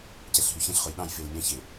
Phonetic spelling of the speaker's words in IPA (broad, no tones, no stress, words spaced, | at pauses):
cɛɬɦyçɛ̃ɬχʊj ɗɑ̃jfel mʲɑ̃çe